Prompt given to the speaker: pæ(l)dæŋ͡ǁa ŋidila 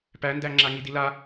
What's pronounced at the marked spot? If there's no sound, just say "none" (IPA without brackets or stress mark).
n